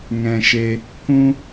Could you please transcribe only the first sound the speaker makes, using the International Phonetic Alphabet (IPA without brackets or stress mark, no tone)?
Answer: ŋ